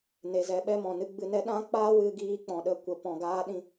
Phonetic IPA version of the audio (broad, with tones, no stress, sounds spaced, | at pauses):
n e˧ z ɛ˧ ɓ ɛ˧ m ɔ̃˨ n ɨ˧ ɡ͡b ɨ˧ n ɛ˦ ɗ ã˦ k͡p a˦ w ɨ˧ ɡ iː˧ k͡p ɔ̃˨ ɗ ə˧ kʷ ə˨ p ɔ̃˨ ɡ aː˧ ɗ ĩ˧